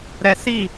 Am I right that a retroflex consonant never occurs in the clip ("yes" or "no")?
yes